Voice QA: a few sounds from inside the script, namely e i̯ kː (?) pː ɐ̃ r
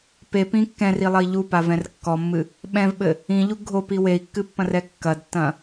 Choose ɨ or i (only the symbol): ɨ